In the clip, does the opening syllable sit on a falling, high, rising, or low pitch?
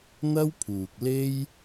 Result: high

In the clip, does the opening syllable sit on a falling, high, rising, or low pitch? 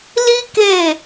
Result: high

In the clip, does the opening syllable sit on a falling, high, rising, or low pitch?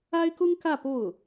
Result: high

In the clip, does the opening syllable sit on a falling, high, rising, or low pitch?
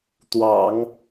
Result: low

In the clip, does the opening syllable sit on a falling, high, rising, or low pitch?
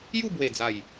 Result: falling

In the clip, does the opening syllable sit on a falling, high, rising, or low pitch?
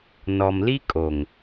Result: low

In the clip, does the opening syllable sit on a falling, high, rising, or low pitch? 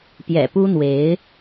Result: low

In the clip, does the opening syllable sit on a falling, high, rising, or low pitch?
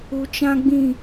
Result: low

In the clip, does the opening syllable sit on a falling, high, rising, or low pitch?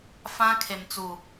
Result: high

